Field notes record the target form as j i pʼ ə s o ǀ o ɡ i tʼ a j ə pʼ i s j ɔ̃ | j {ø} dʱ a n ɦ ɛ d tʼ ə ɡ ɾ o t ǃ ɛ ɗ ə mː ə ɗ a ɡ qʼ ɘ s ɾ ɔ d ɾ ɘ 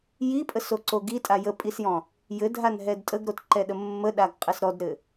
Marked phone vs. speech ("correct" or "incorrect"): incorrect